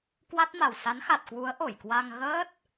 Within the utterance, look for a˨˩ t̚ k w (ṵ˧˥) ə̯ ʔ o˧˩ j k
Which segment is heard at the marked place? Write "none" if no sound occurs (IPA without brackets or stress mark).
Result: u˨˦